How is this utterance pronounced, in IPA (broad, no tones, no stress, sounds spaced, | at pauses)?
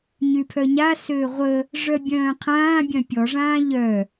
ɲ y pʰ œ ɲ a s øː ʁʷ ə | ʐ œ bʲ œ̃ː qʰ ãː bʲ œ̃ pʲ ɔ ʐ ãː ʎ œ